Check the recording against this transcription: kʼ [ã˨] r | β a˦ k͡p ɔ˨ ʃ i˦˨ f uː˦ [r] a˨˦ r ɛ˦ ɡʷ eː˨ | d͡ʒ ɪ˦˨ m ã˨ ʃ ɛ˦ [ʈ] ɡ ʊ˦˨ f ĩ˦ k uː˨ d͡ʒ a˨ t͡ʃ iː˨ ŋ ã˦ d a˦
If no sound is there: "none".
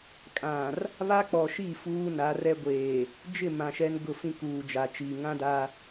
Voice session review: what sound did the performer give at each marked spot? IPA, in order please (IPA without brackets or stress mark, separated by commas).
ã˨, n, n